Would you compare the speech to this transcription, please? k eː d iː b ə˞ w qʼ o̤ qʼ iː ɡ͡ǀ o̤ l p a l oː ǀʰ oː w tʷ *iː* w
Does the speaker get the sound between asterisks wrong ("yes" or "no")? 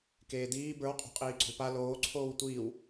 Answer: no